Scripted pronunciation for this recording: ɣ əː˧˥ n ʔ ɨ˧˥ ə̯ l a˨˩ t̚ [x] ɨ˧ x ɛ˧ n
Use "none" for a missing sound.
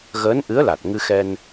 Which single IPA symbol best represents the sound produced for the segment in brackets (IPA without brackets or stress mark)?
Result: ŋ